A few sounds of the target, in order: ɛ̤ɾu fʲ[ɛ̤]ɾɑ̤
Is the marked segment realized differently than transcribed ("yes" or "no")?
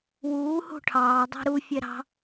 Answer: yes